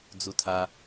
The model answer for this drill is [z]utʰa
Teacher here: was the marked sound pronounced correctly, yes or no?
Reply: no